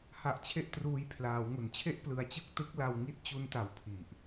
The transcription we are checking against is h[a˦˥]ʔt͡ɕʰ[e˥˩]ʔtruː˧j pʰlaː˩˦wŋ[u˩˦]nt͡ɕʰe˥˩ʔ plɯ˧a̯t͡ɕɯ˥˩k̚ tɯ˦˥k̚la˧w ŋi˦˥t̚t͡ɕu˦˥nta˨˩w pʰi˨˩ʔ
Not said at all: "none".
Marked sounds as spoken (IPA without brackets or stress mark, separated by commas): a˦˥, e˥˩, u˩˦